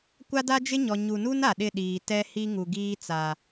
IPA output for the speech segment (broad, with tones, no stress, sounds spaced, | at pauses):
kʷ a˦ d a˦ d͡ʒ ɪ˦ ɲ ɔ˨ ɲ u˨ n u˦ n a˨ ɗ ɪ˦˨ ɗ iː˨ t ɛ˦ h i˦ ŋ u˨ ɡ iː˦ t͡s a˨